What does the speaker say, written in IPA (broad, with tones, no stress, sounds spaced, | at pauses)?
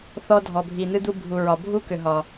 θ ɔ˧ dʱ ɔ˨ bʱ i˨ n̪ ɨ˦ d̪ u˦ bʱ u˨ ɹ ɒ˨ bʱ u˦ k ʏ˨ ɦ ɒ˨